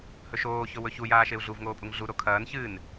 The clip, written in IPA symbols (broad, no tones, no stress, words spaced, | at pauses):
hɵʃoːçɵ wɵçujaːʃeu̯ ɮuvŋoːpʼuŋ ɮu ɾokʰɐːn çɨːn